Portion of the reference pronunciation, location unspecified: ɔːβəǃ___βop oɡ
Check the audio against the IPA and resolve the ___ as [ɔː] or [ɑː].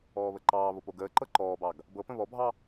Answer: ɑː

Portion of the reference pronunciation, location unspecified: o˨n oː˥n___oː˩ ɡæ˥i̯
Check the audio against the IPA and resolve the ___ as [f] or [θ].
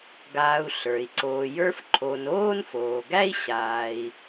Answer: f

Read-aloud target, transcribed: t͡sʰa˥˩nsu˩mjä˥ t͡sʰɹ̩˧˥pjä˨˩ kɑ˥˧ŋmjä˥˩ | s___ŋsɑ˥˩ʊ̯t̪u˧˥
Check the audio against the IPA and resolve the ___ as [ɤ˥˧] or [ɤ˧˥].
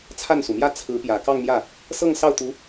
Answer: ɤ˥˧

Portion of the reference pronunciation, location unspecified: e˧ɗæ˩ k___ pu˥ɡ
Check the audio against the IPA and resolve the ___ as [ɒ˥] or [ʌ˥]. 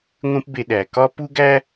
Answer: ɒ˥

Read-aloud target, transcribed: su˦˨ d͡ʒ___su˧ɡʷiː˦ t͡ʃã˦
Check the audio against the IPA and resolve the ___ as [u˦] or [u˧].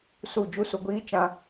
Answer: u˦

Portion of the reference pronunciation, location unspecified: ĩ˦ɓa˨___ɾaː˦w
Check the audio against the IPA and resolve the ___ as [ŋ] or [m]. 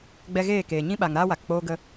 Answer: ŋ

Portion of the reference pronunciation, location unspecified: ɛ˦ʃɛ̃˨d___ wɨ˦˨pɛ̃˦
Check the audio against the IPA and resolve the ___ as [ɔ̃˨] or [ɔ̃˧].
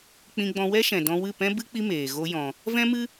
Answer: ɔ̃˧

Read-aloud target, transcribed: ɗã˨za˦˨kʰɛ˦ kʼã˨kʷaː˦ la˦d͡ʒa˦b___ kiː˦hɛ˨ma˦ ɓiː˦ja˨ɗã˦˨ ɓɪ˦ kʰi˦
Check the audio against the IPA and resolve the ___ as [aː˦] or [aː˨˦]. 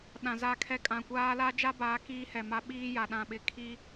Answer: aː˨˦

